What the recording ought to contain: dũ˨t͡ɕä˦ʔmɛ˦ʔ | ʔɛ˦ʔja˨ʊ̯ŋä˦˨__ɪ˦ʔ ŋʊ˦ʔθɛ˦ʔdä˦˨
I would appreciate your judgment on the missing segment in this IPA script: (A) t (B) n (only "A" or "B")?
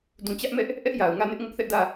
B